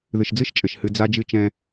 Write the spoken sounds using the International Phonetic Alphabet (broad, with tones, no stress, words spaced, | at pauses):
ðɨ˨ʃd͡zɨ˦ʃt͡ʃʼɘ˨ʃ hɨ˦ d͡za˦d͡ʒɨ˦ t͡ʃɛ̃˦